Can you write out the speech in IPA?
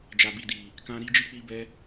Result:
d͡ʒ a˨ b i˨ d i˨ | k ã˧ ɾ i˦ d͡ʒ i˦ k͡p i˧ b ɛ˧

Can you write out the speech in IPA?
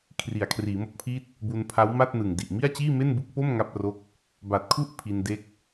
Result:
kʰ r i˩˦ a̯ kʰ r iː˩˦ m o˦˥ k̚ pʰ iː˥˩ t̚ | b u˧ n pʰ a˦˥ w m a˥˩ t̚ n ɯ˨˩ ŋ d i˨˩ ʔ m i˥˩ a̯ t͡ɕ iː˥˩ m e˥˩ n b ɯ˦˥ k̚ p o˥˩ m ŋ a˥˩ p̚ r o˥˩ k̚ | b a˨˩ t̚ kʰ u˥˩ ʔ pʰ i˧ n d e˦˥ k̚

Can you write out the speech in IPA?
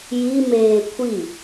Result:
j i m eː kʷʰ i

